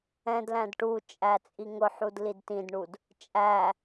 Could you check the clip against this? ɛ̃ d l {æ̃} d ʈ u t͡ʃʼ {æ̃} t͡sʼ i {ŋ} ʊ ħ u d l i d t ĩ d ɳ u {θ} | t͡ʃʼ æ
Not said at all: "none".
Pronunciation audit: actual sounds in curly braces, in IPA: æ̃, æ, ŋ, d

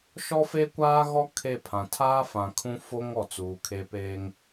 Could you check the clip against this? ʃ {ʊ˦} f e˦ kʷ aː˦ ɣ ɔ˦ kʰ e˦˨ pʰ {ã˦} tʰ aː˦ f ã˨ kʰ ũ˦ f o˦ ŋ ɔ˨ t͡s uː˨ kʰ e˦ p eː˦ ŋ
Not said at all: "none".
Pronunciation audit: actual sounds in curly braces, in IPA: ɔ˦, ã˨

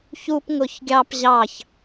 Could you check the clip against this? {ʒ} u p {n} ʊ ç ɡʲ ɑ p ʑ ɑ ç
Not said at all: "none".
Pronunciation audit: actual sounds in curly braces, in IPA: ç, ŋ

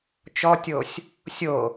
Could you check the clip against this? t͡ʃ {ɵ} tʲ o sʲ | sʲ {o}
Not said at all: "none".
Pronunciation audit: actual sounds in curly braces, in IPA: ɔ, o

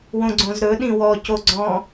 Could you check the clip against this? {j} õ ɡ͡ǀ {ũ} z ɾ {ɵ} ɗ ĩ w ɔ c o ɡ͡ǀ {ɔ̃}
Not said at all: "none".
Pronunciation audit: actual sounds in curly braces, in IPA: w, õ, ɵ, ɔ̃

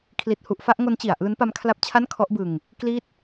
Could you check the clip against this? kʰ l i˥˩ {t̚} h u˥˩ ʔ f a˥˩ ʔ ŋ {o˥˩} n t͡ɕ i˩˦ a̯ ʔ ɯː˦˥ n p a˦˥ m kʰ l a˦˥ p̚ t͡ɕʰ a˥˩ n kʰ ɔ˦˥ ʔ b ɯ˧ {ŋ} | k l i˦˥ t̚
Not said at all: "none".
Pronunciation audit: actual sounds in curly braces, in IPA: t̚, o˦˥, ŋ

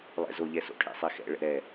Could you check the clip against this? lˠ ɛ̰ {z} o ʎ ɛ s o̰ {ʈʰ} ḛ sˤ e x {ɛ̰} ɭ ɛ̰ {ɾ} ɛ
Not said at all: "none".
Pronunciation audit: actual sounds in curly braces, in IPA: z, ʈʰ, ɛ̰, ɾ

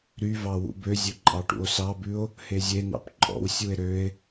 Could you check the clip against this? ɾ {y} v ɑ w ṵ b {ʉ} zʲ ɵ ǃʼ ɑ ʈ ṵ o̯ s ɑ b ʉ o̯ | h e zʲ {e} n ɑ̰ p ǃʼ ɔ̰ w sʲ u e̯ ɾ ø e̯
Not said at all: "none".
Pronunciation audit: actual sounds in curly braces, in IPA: y, ø, e

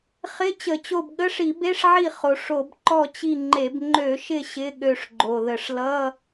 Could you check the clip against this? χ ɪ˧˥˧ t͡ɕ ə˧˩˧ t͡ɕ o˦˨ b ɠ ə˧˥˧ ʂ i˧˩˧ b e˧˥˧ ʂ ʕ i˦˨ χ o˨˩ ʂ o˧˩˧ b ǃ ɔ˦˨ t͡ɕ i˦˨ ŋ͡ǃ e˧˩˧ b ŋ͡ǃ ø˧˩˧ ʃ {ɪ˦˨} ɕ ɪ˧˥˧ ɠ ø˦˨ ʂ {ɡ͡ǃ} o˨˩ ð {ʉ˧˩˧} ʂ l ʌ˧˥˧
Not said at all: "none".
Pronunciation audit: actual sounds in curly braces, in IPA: ɪ˦˨, ɡ͡ǃ, ə˧˩˧

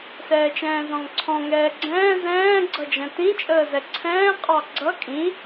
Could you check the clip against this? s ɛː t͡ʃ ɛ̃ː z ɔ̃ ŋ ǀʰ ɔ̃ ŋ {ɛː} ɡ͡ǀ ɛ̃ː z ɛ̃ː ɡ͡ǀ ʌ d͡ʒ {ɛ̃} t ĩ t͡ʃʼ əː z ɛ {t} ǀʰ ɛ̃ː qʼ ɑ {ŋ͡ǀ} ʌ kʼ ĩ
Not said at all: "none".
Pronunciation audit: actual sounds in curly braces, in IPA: ɛː, ɛ̃, none, ɡ͡ǀ

